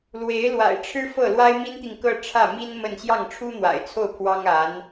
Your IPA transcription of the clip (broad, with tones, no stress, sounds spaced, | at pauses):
l w e˧˥ ɪ̯ l w a̰˨˩ ɪ̯ ʈ͡ʂʰ ɻ̩˥ f ɤ˥˩ l w a˥ ɪ̯ m i˥ n t̪ i˨ ŋ k ɤ˥˧ ʈ͡ʂʰ ä˥˩ m i˥ n m ə˥˧ n ɕ j ɑ˥˩ ŋ ʈ͡ʂʰ u˥ n̪ w a̰˨˩ ɪ̯ t͡sʰ o˥˩ ʊ̯ pʰ w ɑ˥ ŋ a˧˥ n